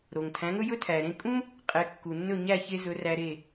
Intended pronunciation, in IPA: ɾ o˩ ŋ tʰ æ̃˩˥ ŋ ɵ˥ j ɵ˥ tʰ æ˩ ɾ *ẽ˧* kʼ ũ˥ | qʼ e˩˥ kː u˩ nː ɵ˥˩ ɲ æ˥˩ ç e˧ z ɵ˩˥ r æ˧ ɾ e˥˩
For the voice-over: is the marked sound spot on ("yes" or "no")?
yes